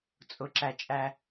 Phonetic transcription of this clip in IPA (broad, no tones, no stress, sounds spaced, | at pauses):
t͡sʼ ʊ ǁ æ t͡ʃʼ æ